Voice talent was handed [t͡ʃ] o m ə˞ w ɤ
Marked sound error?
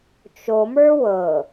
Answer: no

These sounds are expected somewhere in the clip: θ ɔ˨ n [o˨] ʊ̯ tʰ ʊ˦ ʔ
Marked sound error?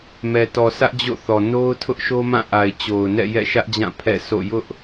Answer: yes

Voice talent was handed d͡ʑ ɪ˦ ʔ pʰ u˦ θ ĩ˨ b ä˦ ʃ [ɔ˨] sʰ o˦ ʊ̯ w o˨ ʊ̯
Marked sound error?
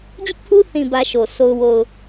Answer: yes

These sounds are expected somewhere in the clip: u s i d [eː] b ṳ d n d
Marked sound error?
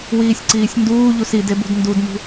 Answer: yes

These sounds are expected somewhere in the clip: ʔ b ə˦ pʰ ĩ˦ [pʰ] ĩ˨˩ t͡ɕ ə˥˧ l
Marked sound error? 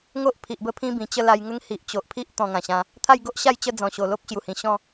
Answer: yes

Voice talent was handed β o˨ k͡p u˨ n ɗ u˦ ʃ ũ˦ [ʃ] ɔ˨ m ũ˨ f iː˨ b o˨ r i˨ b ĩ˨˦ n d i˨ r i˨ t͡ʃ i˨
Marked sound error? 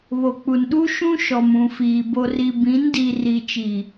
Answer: no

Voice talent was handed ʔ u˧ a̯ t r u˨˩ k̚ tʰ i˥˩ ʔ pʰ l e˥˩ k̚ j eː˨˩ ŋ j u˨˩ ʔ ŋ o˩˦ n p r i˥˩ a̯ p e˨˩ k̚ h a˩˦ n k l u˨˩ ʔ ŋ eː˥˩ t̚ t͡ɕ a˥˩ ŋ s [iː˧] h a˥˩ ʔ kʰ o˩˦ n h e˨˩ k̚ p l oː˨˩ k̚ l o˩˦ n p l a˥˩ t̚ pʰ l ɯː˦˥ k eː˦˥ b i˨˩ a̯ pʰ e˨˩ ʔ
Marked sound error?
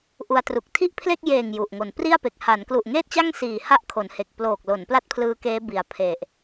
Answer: yes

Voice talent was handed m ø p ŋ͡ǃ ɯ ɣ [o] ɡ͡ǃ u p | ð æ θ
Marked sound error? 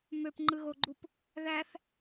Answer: no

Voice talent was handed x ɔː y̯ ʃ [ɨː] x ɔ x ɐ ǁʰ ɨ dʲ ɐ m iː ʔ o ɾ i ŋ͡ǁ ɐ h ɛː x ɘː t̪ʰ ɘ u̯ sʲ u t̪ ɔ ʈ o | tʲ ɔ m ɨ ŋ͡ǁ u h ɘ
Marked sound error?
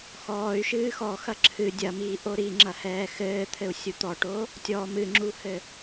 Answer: no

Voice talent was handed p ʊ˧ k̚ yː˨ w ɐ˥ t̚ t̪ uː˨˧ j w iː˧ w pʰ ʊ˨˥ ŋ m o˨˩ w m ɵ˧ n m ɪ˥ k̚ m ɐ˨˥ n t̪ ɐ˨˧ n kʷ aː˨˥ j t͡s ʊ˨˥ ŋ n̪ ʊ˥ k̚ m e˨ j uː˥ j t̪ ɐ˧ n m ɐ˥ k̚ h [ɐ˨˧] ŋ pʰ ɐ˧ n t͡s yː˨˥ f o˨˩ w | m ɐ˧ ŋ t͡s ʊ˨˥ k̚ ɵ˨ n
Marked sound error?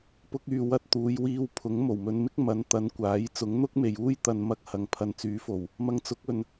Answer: no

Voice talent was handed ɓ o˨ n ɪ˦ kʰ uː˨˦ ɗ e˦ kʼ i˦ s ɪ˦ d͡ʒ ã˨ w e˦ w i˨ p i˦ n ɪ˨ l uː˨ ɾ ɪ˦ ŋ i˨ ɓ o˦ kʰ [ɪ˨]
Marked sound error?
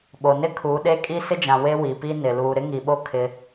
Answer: yes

